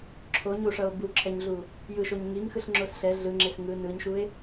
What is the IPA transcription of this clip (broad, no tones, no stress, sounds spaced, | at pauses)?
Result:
ǁʰ o ɲ u ʂ ʌ o̯ b u ǁʰ ɛ ɲ ɮ u | j ɯ ʃ o ɲ ŋ i ŋ x ɯ ɬ ŋ͡ǁ o s ɬ ɛ ɮ ɯ ŋ͡ǁ e s ŋ ɯ n ɯ ɲ ʃ u e̯